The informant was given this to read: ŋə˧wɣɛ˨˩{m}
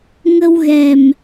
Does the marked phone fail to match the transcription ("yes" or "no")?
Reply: no